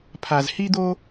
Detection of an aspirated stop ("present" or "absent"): present